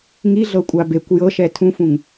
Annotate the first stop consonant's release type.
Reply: ejective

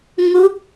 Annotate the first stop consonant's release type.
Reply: plain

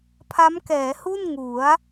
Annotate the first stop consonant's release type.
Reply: aspirated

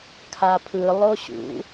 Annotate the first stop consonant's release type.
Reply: aspirated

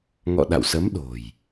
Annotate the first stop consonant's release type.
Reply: implosive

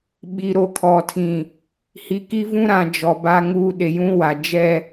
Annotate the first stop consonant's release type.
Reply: implosive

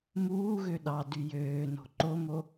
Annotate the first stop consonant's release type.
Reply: implosive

